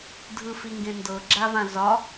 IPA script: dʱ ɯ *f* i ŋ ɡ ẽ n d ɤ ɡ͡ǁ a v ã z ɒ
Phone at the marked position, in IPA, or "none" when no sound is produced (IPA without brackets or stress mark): f